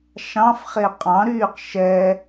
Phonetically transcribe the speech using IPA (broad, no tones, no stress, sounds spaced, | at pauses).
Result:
ʃ ɑ̃ f χ e qʼ ɑ̃ ɾ yː q ʃ ɛ